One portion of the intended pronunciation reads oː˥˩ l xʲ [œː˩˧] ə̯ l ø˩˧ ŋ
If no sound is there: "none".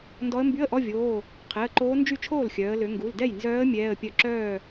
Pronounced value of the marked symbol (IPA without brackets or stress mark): œː˩˧